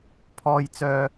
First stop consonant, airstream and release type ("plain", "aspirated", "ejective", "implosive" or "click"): aspirated